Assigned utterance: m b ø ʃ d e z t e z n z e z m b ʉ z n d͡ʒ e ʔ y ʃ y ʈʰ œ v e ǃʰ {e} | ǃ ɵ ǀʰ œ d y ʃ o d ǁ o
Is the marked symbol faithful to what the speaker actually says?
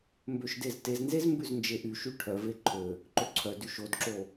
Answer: no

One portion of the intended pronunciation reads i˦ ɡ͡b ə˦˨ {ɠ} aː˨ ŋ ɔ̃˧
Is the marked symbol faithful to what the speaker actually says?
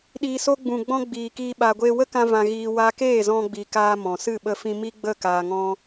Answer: no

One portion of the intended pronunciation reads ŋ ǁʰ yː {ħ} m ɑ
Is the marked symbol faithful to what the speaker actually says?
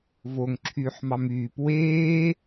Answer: yes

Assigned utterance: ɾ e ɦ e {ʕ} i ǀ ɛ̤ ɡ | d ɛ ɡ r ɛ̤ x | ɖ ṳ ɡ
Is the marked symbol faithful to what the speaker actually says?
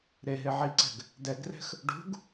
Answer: yes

